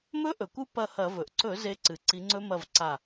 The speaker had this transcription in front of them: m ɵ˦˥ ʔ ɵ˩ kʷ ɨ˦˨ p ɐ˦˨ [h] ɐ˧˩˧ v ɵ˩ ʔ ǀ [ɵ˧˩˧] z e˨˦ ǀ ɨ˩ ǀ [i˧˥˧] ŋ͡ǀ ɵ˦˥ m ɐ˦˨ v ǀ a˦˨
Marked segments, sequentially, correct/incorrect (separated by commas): correct, correct, incorrect